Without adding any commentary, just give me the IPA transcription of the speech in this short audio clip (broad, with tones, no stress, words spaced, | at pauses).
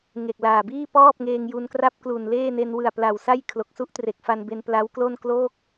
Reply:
ŋe˨˩k̚ laː˨˩biː˥˩ pɔː˥˩p̚ŋeː˧ŋ ju˧nkra˥˩p̚ klu˨˩nleː˥˩ne˧n wɯ˨˩a̯pla˨˩wsa˥˩j kʰlo˨˩k̚su˥˩ʔtre˨˩k̚ fa˧nbe˧n pla˦˥wklo˥˩n kloː˥˩k̚